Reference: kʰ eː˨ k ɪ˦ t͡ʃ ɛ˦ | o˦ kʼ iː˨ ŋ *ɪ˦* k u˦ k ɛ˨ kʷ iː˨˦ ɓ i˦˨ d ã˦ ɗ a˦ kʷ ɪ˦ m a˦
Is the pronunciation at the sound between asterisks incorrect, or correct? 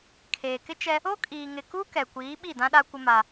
incorrect: ɪ˨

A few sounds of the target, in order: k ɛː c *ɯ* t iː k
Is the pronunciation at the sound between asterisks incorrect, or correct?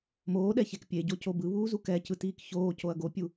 correct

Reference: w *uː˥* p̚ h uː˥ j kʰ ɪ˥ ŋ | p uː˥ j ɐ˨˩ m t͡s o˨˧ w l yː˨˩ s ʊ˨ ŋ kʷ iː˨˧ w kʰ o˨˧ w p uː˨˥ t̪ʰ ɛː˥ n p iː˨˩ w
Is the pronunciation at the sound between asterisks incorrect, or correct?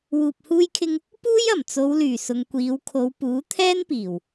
incorrect: uː˧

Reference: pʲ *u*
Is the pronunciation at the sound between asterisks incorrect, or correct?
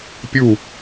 correct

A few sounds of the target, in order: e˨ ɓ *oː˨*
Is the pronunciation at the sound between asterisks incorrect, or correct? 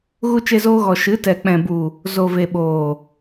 correct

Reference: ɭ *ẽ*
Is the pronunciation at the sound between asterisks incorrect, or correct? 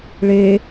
incorrect: e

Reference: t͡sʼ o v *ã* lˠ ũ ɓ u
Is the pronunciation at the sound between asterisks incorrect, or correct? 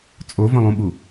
incorrect: ə̃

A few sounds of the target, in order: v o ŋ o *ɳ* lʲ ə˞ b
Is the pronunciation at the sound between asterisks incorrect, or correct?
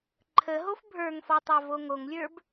incorrect: ŋ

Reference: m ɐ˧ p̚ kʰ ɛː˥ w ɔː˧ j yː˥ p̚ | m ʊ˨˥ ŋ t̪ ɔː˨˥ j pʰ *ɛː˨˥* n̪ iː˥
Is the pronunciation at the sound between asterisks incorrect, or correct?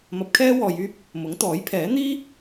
correct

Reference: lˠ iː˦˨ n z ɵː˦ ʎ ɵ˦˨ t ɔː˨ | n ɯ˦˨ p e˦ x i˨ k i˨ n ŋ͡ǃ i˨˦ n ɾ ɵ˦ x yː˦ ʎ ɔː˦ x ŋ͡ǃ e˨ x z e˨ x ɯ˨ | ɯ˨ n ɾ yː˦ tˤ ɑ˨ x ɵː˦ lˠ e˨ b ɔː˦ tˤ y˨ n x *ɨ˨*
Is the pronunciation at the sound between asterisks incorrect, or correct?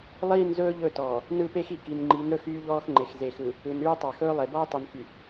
incorrect: y˨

